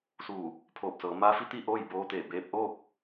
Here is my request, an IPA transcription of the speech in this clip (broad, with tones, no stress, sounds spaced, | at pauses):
s uː˧˩ | pʰ oː˧˩ p̚ s ɤː˩˧ m a˧˥ f i˧˥ t̪ i˥˨ ʔ oː˥˨ j b oː˧ t̪ eː˧˩ b eː˧ p̚ ʔ oː˥˨ k̚